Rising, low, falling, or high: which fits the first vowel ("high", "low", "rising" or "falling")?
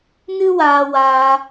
high